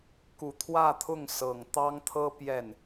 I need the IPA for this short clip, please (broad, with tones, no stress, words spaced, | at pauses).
ku˨˩t̪ʰwä˥˧t̪ʰʊ˥˩ŋ sɤ˨˩ŋt̪ɑ˥ŋt̪ʰɤ˥ pjɛ˥˩n